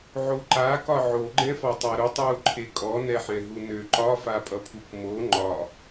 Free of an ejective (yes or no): no